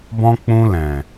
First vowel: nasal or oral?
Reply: nasal